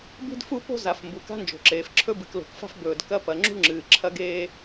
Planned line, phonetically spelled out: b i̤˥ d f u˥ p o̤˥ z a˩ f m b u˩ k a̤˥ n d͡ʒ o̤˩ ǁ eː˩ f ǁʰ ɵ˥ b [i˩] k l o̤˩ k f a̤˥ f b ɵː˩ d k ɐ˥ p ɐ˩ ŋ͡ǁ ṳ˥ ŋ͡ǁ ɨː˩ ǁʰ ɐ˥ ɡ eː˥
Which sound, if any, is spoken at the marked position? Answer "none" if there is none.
ɨ˩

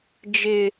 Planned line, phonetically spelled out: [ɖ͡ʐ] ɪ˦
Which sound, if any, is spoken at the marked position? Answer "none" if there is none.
d͡ʒ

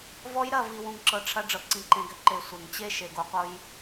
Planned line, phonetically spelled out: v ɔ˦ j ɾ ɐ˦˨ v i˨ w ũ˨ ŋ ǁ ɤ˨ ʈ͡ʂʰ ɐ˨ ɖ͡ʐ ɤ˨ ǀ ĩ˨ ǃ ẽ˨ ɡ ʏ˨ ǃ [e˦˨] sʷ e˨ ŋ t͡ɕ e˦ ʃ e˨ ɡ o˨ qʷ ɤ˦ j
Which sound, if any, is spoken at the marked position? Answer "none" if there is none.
e˨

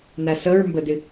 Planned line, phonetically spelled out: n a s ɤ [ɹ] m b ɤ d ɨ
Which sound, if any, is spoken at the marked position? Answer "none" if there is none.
ɹ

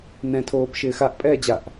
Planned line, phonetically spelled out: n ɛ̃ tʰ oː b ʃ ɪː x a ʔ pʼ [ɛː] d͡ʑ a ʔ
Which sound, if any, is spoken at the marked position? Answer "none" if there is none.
ɛː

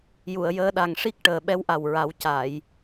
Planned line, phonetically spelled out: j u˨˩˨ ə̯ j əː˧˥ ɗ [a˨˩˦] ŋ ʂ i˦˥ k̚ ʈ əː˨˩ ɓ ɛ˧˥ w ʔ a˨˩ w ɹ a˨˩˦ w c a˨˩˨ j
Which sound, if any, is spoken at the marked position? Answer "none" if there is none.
a˨˩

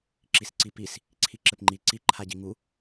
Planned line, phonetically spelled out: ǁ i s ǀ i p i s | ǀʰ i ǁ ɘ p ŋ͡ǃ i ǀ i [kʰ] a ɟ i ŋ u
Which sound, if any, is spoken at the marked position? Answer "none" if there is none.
ǃʰ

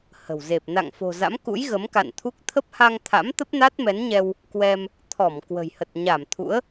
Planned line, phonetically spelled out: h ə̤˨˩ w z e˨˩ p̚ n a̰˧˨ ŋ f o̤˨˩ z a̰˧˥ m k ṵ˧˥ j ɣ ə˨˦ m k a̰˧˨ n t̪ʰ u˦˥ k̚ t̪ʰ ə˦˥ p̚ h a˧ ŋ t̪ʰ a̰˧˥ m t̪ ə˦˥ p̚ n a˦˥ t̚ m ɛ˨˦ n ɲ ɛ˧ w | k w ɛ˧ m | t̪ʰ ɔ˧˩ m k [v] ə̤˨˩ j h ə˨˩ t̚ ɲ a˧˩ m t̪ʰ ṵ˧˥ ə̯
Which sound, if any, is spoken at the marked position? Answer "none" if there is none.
w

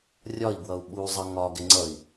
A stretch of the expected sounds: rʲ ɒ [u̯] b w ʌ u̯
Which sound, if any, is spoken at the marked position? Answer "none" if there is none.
i̯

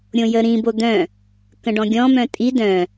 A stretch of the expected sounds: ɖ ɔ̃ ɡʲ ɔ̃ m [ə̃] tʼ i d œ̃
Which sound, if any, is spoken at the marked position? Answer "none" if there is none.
œ̃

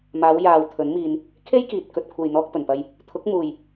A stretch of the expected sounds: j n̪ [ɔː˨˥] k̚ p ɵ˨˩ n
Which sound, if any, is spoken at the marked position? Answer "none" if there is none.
ɔː˧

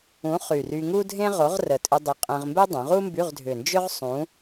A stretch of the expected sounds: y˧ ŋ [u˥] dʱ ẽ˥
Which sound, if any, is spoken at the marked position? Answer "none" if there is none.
u˥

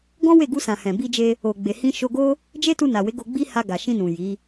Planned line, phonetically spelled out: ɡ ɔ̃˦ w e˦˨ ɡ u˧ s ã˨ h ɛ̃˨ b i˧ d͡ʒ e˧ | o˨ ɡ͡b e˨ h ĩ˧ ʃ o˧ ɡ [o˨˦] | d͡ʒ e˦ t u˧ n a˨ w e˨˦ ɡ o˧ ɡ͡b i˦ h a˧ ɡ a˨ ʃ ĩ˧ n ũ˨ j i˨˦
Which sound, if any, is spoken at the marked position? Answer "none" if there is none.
o˦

